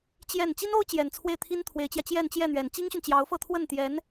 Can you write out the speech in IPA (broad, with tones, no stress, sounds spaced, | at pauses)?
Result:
t͡ɕ j ɛ˥˩ n t͡ɕ i˥ n o˥ ʊ̯ t͡ɕ j ɛ˨˩ n t͡sʰ w e˥˩ ɪ̯ t̪ʰ i˥ n t̪ʰ w e˧˥ ɪ̯ t͡ɕ j ä˧ t͡ɕ j ɛ˥˧ n t͡ɕ j ɛ˥˩ n̪ ɥ ɛ˨˩ n t͡ɕ i˥ ŋ ɕ y˨ n t͡ɕ j ɑ˧˥ ʊ̯ f ɤ˥˧ t̪ʰ w ə˥˩ n t̪ j ɛ˧˥ n